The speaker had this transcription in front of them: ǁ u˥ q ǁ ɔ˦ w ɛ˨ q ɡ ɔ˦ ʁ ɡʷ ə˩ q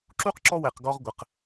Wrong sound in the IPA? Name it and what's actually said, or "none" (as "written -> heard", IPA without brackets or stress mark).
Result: none